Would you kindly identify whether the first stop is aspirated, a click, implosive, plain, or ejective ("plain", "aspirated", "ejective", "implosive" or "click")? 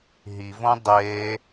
plain